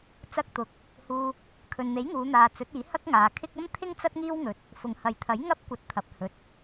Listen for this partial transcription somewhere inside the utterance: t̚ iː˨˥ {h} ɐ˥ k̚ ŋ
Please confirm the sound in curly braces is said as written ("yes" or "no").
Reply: yes